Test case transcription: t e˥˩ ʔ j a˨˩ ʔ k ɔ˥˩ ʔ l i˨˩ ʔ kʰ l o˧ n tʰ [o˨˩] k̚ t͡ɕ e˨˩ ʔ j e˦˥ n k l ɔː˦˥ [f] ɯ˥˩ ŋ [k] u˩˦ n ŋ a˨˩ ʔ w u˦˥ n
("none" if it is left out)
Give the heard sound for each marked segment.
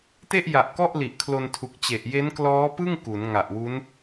u˨˩, p, k

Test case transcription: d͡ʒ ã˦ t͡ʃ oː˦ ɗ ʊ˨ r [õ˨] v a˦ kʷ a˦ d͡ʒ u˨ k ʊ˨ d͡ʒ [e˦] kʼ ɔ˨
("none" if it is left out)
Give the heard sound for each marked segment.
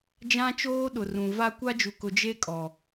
ũ˨, e˦

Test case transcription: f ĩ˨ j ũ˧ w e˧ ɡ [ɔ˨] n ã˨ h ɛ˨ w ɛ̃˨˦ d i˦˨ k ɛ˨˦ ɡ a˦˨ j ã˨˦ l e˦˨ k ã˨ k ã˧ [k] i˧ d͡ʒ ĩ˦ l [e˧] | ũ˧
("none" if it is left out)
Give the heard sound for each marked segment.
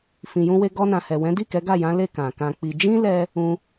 ɔ˧, k͡p, ɛ˧

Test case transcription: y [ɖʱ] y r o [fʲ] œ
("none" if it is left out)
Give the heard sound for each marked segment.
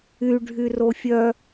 ɖʱ, fʲ

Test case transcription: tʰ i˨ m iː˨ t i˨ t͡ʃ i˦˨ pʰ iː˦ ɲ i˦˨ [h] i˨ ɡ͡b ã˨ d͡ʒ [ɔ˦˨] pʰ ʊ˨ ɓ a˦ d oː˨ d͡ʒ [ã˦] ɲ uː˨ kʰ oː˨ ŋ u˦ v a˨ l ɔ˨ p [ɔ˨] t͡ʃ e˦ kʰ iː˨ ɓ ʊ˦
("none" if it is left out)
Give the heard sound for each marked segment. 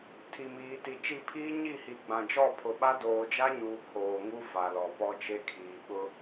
h, ɔ˦˨, a˦, ɔ˦

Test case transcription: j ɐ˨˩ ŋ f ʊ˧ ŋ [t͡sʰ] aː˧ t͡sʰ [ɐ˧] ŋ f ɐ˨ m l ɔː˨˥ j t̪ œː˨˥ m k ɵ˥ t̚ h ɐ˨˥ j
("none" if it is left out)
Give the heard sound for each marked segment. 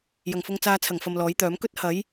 t͡s, ɐ˨˩

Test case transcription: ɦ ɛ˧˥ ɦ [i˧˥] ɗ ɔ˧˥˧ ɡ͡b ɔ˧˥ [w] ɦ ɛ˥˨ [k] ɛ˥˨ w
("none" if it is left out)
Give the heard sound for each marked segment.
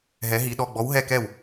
i˧˥, w, k

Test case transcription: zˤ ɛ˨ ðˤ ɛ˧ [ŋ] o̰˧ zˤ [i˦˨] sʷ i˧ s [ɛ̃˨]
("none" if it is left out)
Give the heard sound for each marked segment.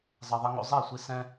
ŋ, e˦˨, ɛ̃˦

